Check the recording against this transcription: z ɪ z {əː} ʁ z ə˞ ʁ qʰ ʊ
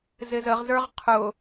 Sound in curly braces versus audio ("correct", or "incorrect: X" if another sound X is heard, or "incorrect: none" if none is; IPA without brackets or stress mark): incorrect: ə